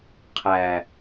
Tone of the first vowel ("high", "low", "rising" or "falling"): low